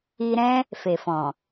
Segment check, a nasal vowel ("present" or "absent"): present